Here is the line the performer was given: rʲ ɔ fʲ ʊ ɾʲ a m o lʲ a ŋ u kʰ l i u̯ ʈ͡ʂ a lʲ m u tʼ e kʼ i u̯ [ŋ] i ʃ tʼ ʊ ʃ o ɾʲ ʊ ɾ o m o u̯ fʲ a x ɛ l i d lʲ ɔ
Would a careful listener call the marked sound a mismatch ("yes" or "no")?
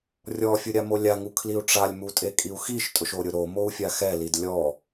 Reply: yes